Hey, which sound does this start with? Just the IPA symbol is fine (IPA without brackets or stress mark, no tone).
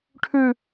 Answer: ʈʰ